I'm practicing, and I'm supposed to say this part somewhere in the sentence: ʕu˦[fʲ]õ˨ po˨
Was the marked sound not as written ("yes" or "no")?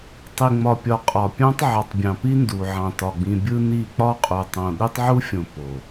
no